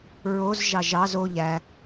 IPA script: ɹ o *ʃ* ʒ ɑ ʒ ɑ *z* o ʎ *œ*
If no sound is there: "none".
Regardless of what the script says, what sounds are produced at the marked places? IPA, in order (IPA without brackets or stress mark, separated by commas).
z, z, æ